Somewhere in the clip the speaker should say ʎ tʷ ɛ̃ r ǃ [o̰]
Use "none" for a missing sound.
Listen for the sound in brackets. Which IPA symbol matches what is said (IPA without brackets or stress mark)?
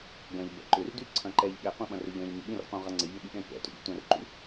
ṵ